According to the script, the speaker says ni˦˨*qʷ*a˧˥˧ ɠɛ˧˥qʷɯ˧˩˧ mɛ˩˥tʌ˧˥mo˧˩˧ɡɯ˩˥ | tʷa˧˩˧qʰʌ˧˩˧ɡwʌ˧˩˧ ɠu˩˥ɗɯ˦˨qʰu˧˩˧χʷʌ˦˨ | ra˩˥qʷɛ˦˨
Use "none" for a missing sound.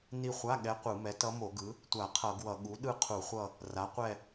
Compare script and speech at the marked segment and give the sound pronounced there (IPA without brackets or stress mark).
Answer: χʷ